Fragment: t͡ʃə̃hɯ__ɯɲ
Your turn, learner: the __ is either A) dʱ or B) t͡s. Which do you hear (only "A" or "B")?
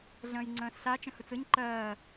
B